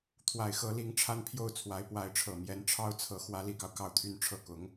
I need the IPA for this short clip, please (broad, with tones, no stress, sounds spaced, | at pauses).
t̪ʰ w a˨˩ ɪ̯ x ɤ˧˥ l i˧˥ ŋ ʈ͡ʂʰ a˥ n pʰ j o˥˩ ʊ̯ t͡sʰ w a˧˥ ɪ̯ p w a˧˥ ɪ̯ ʈ͡ʂʰ ɤ˨˩ m j ɛ˧˥ n ʈ͡ʂʰ ɑ˥ ʊ̯ t͡sʰ ɤ˧˥ x w ä˧˥ l i˨˩ k ɑ˦ ʊ̯ k ɑ˥˧ ʊ̯ t̪ʰ y˥˧ n ʈ͡ʂʰ ɤ˥˩ k ʊ˧˥ ŋ